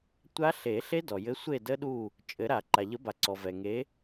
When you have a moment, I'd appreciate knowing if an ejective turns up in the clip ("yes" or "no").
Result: yes